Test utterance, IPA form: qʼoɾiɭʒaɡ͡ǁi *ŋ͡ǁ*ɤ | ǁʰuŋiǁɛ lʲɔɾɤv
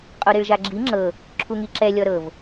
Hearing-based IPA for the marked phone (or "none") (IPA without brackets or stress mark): ŋ͡ǁ